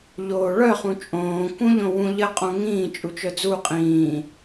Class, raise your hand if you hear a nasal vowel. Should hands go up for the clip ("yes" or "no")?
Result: yes